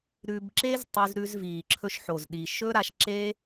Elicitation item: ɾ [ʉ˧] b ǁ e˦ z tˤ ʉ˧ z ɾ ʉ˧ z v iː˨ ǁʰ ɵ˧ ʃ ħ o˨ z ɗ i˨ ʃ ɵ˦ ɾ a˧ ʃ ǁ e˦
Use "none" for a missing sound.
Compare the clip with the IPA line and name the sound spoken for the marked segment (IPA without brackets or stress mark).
ʉ˧